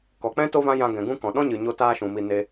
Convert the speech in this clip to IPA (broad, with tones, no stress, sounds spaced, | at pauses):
k ɔ˨ k͡p ɛ̃˦ t o˦ v ã˦ j ã˧ ɡ ɛ̃˨ ɡ ũ˦ k ɔ̃˨ ɗ ɔ̃˦ ɲ ɨ˨ ɲ o˧ t aː˦ ʃ ũ˨ m i˧ n e˧